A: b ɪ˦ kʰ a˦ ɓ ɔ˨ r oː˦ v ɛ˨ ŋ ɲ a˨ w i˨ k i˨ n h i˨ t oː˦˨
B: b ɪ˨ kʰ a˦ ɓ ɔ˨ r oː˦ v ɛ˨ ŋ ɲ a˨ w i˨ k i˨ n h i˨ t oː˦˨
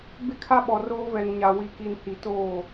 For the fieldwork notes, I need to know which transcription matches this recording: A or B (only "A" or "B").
A